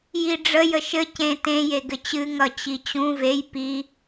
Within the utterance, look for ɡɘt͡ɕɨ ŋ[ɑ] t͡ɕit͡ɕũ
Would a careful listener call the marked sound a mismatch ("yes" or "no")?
yes